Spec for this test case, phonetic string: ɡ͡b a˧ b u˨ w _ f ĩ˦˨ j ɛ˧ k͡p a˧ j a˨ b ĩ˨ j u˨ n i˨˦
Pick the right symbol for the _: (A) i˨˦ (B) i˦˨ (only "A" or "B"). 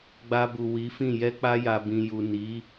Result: A